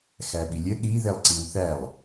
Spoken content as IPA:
x æ ɓ i lʲ ə ɗ i ð ɛ lˠ ǀ i w θ æ lˠ

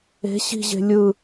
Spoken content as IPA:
e̤ ɕ i̤ ʑ e̤ lʲ ɯ

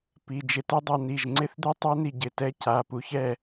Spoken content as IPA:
p i˩˧˩ d͡ʒ ɪ˧ t ɛ˦˥ dˤ a˧ n̪ i˩˧˩ ʒ ŋ͡ǀ ɪ˦˥ θ d̪ ɪ˦˥ tˤ ɛ˦˥ n̪ i˧ ɟ ɪ˩˧˩ t ɛ˦˥ c a˩˧˩ p u˧ ç ɛ˥˨

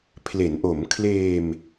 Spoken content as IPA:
pʰ l e˩˦ n ʔ o˩˦ m kʰ l eː˧ m

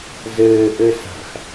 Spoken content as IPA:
z ɘː ʔ ɘ s a̤ x

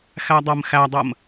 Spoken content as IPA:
x æ dˤ ɜ m x æ dˤ ɜ m

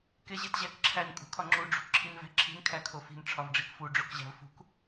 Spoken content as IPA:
k e ʑ e t ʑ æ k ǁʰ æ n kʼ ṳ kʰ ɒ ŋ͡ǁ u ɖ͡ʐ ṳ k ǁʰ i n v æ̤ ǁʰ i̤ n kʰ æ kʰ o f i̤ n ʈ͡ʂʰ ɒ v ɖ͡ʐ i k f u ɖ͡ʐ o k ʑ æ̤ v f ṳ k

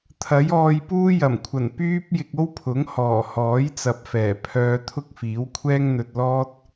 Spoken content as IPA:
t̪ʰ ɐ˨˥ j ɔː˧ j p uː˥ j ɐ˨˩ m kʷʰ ɐ˨˩ n p yː˥ p̚ j ɪ˧ k̚ o˥ w pʰ ʊ˨˥ ŋ h ɔː˨˩ h ɔː˨˥ j t͡s ɐ˨ p̚ f ɛː˨˩ pʰ œː˧ t̪ʰ ʊ˥ k̚ f iː˨˥ w kʷʰ ɛː˥ ŋ n̪ ɵ˧ t̚ l ɔː˥ t̚

